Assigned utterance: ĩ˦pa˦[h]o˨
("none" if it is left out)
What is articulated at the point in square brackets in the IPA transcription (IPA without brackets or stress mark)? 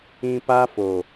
f